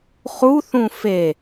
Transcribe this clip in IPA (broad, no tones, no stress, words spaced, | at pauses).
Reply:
χuθũ fe